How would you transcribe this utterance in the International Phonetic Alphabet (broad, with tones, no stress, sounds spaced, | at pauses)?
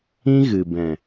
ĩ˦ ɣ ɨ˨ b ɛ̃˨